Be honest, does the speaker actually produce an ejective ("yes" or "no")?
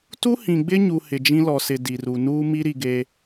no